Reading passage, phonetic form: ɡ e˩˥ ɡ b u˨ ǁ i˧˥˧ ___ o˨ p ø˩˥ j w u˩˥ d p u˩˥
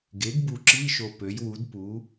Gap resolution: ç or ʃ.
ʃ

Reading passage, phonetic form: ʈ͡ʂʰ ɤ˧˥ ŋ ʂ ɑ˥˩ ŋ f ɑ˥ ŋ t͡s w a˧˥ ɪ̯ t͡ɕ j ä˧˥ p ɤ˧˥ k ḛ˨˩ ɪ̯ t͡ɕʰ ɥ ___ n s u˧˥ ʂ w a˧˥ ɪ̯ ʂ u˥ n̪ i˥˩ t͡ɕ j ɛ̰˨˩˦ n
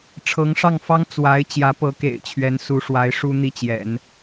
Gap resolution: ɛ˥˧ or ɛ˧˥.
ɛ˧˥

